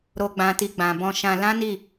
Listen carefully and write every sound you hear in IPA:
ɾ o˨ ɡ͡b ã˨ t i˨ ɡ͡b ã˨ b ɔ̃˧ ʃ ã˧ l ã˦ n i˦˨

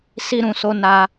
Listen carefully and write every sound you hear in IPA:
s i˧ ɾ ũ˨ s o˧ n a˧

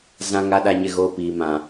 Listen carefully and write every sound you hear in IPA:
z ã˦ ŋ a˦ ɗ a˦ ɲ ɪ˦ ɣ oː˦ p iː˨ m ã˨

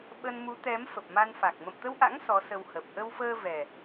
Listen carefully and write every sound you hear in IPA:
ɓ ə˧ n m u˨˦ t̪ ɛ˨˦ m f ə˨˩ p̚ m a˧ n f a˨˩ k̚ m ə̰˧˨ m t̪ ə˧ w ʔ a̰˧˥ ŋ s ɔ˨˦ s ə˧ w h ə˨˩ p̚ ʔ ə˧ w f əː˧ v ɛ˨˩

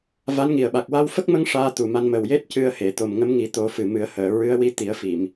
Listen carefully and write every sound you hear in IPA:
v a˧˥ n ŋ i˨˩ ə̯ ɓ a˨˩ k̚ w a˧ w f ə˦˥ k̚ m ə˧˥ ŋ ʂ aː˧˥ t̪ u˨˩ m a˧ n m ə˨˩ w j e˦˥ t̚ c ɨ˧ ə̯ h e˨˩˨ t̪ o˨˩ m ŋ ə˧˥ m ŋ i˨˩˦ t̪ o˨˩˦ f ɨ˨˩ m ɨ˨˩˦ ə̯ h əː˨˩˨ ɹ ɨ˧˥ ə̯ w i˧˥ t̪ i˨˩˦ ə̯ f i˨˩˨ m

